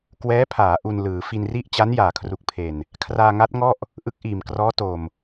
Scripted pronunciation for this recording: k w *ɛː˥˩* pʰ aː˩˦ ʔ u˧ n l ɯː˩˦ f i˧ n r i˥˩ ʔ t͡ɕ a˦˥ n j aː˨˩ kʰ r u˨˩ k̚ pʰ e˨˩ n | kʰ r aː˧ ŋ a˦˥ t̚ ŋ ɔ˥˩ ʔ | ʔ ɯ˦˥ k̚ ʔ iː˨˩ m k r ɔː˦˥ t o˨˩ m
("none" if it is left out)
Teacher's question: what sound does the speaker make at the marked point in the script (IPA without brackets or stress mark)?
ɛː˦˥